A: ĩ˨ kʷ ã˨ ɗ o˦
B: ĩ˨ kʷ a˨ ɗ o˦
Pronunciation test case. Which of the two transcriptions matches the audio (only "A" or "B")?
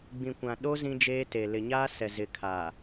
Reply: A